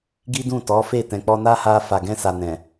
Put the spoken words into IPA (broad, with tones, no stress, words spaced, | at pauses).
ɡi˦dũ˦˨tɔ˨˦fe˦˨ tɛ̃˨k͡pɔ˧na˦ha˧ fa˨ɡɛ̃˧sa˨ nɛ̃˨